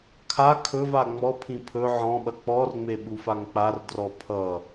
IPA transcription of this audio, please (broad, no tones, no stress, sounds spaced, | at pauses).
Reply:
kʰ a kʰ ɵ v a ŋ͡m ɔ pʰ ĩ pʰ ɵ ʕ ɔ̃ ɓ ɐ k͡p ɔ r ŋ͡m e ɓ u f a ŋ k͡p a r d r ɔ pʰ ʌ